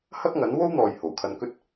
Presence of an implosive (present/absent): absent